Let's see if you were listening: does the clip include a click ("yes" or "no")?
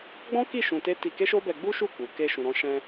no